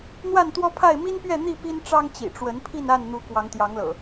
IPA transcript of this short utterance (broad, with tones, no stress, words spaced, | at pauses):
n̪wa˥˨nt̪wɔ˦pʰa˥˨ɪ̯ mi˦npɥɛ˥˨n̪i˥˨ pi˦nʈ͡ʂɑ˦ŋt͡ɕḭ˨˩ʈ͡ʂwə˨˦n pʰi˥˨na˥˨nn̪u˨˦ kwɑ˨˦ŋt̪jɑ˨˦ŋlɤ̰˨˩